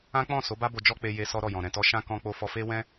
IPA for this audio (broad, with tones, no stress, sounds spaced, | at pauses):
ã˦ k͡p ɔ̃˦˨ s o˨˦ b a˦ b o˧ d͡ʒ ɔ˦ k͡p e˧ j e˧ s ɔ˦ ɾ ɔ˦˨ j ɔ̃˨ ɾ ɛ̃˨ t ɔ˧ ʃ ã˦ k ɔ̃˧ k͡p o˧ f ɔ˧ f e˦ w ɛ̃˦